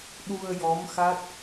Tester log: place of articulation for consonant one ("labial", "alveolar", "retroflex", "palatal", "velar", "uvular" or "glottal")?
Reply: alveolar